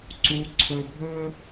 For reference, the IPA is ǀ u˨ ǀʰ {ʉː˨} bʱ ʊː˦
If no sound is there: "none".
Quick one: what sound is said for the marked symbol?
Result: ʊː˨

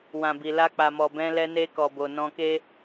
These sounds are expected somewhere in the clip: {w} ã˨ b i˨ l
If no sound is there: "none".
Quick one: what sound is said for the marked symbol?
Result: w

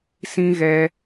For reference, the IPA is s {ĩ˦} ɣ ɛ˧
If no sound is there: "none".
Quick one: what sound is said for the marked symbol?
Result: ĩ˦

